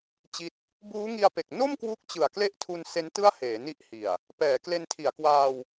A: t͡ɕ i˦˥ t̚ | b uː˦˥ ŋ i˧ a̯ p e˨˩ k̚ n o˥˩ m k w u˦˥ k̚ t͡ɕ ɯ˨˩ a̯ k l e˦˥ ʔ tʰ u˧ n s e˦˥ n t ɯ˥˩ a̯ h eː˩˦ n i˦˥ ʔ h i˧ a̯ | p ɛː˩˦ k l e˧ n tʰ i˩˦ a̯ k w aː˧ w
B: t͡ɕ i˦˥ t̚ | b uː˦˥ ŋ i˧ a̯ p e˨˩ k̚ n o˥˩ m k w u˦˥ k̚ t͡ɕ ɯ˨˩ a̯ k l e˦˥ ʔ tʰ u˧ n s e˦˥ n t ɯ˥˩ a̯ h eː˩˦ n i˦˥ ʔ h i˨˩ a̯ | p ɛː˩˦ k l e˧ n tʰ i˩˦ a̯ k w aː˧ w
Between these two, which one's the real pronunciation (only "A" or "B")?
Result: B